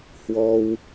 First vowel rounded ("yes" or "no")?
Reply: yes